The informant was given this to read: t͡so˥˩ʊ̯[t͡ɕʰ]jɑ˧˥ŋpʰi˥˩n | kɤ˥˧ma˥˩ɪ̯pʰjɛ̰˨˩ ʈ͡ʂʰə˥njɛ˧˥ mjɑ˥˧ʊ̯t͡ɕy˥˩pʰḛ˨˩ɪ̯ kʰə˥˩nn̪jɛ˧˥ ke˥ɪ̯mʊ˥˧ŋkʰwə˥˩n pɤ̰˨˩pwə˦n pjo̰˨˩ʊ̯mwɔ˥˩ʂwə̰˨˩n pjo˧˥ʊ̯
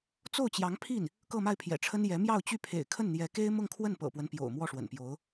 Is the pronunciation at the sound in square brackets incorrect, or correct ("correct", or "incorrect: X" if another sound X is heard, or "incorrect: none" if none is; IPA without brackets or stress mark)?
incorrect: t͡ɕ